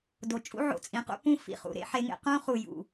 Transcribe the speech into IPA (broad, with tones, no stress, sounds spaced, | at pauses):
d o˨ t͡ʃʼ ṵ˦ ʕ o̰˨ t͡sʼ ĩ˨ q ṵ˦ p ũ˦ f ḭ˨ χ ṵ˨ ɾ ḛ˦ ħ e˦ ŋ ḛ˦ q ũ˦ χ u˨ j ṵ˨